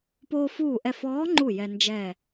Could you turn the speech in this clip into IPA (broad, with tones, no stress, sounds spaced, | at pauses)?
p oː˧ f uː˧˩ ʔ ɛ˧˩ f ɔː˧˥ ŋ͡ǃ u˧˩ j ɛ˧ n d͡ʒ ɛ˧˩